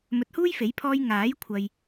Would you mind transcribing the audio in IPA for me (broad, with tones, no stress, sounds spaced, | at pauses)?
m ɵ˨ t̚ h uː˥ j f e˨˥ j pʰ ɔː˧ j ŋ aː˨˥ j kʷʰ ɐ˨ j